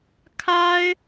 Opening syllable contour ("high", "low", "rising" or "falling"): high